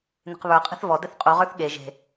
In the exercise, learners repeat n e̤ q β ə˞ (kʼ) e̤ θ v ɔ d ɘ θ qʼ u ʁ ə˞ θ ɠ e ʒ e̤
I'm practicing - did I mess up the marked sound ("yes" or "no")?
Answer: yes